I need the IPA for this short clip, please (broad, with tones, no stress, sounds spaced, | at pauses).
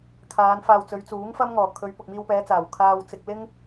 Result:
kʰ aː˨˧ n f aː˨ w t͡s ɵ˨˧ ɥ t͡s uː˨˥ ŋ f ɐ˥ m ŋ ɔː˨˩ kʰ ɵ˨˧ ɥ p ʊ˨ k̚ m iː˧ w p ɛː˨˧ t͡s aː˨˩ w kʰ aː˧ w t͡s ɪ˧ k̚ l ɪ˥ ŋ